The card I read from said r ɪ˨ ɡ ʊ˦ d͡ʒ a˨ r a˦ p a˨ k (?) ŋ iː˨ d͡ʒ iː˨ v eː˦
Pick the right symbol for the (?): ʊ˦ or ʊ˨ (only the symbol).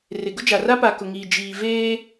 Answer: ʊ˨